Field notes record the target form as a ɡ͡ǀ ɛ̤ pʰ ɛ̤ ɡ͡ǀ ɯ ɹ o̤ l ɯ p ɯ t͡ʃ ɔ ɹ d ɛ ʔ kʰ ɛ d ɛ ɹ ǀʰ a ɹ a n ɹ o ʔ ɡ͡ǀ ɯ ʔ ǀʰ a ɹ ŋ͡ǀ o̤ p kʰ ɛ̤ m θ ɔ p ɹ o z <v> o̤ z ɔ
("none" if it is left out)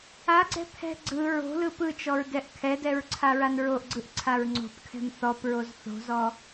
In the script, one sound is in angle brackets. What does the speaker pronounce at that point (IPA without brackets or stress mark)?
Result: θ